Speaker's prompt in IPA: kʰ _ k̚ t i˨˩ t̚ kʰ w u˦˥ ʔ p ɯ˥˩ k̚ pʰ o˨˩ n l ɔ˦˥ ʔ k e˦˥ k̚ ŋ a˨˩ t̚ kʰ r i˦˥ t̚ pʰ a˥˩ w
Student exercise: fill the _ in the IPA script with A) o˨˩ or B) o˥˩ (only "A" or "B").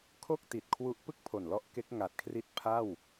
B